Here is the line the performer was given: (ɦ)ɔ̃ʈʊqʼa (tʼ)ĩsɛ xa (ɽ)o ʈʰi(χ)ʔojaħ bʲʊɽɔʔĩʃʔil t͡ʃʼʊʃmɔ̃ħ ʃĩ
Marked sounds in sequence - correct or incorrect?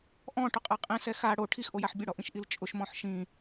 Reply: incorrect, incorrect, correct, incorrect

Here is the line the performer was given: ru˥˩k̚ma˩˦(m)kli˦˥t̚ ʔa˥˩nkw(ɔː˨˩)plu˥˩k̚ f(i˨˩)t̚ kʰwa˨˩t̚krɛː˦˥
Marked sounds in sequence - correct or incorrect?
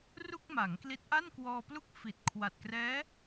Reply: incorrect, incorrect, correct

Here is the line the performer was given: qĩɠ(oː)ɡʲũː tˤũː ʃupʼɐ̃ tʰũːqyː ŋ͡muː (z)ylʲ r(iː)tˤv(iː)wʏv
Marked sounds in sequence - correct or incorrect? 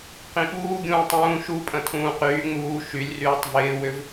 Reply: incorrect, incorrect, incorrect, incorrect

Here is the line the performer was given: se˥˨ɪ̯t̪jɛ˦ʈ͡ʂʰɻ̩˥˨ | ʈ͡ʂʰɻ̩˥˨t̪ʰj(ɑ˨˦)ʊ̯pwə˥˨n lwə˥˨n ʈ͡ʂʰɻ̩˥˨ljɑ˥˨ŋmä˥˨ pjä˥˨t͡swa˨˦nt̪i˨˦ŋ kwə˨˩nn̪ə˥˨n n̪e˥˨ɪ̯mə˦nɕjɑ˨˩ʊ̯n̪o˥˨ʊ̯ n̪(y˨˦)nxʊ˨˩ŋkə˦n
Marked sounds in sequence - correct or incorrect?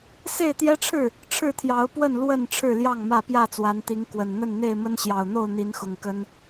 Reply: correct, incorrect

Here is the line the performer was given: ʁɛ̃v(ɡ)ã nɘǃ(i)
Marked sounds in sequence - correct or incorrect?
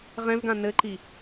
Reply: correct, correct

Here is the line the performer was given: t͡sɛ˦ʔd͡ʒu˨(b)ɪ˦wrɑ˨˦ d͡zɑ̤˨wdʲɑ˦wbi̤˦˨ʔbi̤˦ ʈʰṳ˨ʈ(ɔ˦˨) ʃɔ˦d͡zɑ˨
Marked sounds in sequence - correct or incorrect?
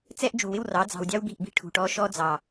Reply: incorrect, incorrect

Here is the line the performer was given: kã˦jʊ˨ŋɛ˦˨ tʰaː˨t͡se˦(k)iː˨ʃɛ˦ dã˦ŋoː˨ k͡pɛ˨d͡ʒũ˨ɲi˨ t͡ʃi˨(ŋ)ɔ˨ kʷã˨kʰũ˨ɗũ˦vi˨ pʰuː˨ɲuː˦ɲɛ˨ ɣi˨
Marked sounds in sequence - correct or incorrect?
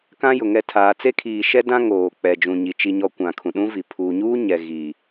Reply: incorrect, incorrect

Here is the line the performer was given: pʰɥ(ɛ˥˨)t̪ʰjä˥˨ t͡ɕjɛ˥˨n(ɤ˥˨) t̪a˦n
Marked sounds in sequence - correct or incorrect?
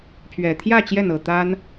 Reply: incorrect, correct

